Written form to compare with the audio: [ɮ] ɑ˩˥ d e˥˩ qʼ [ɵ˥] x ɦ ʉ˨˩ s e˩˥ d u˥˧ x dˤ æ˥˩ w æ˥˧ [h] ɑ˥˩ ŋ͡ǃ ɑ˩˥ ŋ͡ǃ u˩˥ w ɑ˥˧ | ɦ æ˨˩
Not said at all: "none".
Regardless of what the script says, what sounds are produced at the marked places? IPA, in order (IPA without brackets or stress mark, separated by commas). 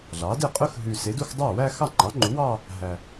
ɮ, ɵ˥, x